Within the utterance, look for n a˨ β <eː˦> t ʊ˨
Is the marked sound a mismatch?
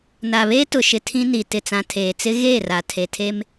no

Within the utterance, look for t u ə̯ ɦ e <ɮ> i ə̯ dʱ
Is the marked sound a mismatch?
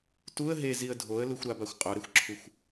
yes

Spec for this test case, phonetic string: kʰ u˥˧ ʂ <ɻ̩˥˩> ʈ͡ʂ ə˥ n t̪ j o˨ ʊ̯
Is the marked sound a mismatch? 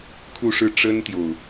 no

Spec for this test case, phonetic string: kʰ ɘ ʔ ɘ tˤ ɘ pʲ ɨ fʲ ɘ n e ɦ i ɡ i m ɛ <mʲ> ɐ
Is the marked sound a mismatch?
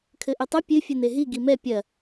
yes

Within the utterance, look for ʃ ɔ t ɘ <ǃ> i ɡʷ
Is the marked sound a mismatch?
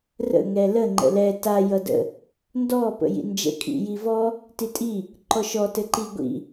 no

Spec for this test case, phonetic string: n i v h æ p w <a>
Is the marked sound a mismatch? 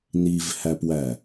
yes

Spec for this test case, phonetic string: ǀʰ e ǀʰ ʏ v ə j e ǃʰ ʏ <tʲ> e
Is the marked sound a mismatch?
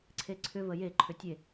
no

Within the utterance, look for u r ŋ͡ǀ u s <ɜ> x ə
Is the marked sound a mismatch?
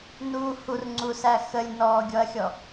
yes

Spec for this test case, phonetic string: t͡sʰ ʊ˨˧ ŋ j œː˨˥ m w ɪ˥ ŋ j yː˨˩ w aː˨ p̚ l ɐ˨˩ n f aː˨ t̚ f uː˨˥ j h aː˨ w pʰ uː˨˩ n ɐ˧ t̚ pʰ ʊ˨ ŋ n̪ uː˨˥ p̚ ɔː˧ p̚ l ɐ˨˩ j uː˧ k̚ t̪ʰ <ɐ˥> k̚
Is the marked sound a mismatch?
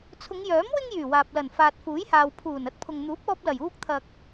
yes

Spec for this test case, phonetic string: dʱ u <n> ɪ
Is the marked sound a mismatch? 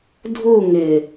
yes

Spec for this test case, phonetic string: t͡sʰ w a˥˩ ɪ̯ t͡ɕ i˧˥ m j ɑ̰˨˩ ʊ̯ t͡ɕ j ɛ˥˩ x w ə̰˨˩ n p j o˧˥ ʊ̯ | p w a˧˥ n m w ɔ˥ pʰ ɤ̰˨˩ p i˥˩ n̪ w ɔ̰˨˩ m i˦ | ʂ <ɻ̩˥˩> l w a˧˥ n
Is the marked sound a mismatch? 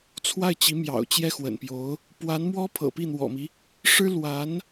yes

